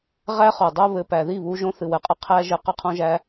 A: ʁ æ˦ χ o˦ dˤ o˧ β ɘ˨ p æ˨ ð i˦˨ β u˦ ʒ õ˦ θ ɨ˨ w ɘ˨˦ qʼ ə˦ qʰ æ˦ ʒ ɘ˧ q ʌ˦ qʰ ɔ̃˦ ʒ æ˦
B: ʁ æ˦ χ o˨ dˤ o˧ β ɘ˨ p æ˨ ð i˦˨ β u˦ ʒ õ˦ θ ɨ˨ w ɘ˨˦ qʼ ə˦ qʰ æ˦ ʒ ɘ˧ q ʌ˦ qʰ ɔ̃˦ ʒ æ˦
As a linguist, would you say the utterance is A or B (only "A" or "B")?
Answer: B